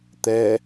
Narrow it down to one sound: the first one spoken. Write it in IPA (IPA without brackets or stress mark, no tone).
t̪